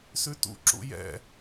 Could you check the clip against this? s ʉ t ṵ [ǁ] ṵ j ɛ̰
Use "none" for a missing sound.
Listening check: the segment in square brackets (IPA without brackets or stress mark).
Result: ǁ